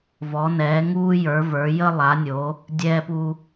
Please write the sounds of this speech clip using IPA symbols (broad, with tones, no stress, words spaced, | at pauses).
vɔ˨˦nɛː˨˦ ŋuː˦jə˞˨˦və˞˨˦ jə˦ lˠa˨˦nʲo˨˦ | dʲɛː˦pu˦